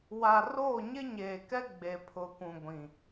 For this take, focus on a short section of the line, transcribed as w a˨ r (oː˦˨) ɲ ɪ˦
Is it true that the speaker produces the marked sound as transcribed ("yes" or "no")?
yes